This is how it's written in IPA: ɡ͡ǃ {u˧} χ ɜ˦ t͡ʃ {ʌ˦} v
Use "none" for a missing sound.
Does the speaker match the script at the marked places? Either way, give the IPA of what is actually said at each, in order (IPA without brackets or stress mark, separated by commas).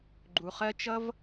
u˧, ʌ˦